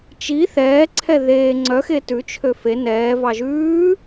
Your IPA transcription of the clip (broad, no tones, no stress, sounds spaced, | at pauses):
t͡ʃ i θ ɛː ǀʰ ɛ ð eː ŋ͡ǀ œ x e t ʉ t͡ʃʰ ø f e n ɛː v ɑ ʒ ʉː